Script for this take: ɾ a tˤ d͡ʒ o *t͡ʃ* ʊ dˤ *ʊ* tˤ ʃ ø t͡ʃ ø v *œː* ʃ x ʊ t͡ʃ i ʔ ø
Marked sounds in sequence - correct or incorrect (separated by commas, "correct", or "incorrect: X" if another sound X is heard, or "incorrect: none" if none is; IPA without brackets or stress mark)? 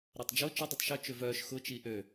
correct, incorrect: u, correct